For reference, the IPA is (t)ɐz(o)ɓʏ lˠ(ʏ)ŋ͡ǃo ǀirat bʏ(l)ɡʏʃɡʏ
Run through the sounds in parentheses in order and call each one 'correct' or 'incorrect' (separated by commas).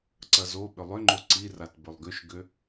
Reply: incorrect, correct, correct, incorrect